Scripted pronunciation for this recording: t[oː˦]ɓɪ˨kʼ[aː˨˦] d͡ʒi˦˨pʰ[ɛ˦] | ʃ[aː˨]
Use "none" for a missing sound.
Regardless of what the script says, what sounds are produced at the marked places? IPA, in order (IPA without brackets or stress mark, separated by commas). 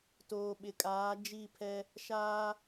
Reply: oː˨, aː˨˦, ɛ˦, aː˦